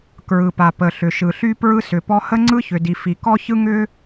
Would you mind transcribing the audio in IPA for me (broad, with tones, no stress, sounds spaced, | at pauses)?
k ɹ ɯ˩ p a˩ p ə˩ ɬ ʏ˩ ʃ ɯ˩ ɬ y˥ p ɹ ɯ˥ s ʏ˩ p ɔ˥ h ə˥ ŋ͡ǀ ɯ˥ ç ʏ˩ d i˩ f i˩ k ɔ˥ ç ɯ˥ ŋ ʏ˥